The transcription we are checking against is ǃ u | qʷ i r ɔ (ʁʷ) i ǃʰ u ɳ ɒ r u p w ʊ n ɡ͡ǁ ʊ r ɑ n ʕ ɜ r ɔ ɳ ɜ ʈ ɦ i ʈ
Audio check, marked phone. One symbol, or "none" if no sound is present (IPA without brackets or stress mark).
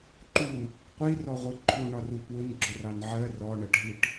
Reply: ʁʷ